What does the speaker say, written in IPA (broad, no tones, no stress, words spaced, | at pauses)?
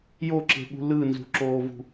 joǁe̤ɠṳ lɯnzṳǁoːvṳ